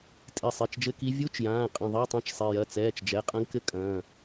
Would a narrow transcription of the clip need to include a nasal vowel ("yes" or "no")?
yes